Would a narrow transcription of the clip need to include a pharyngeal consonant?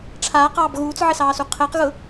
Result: yes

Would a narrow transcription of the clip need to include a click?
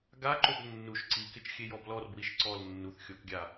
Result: yes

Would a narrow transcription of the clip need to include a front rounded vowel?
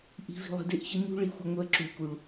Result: yes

